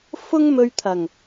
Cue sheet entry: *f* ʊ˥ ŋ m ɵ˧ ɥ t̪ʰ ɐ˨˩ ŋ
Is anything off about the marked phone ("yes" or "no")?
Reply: no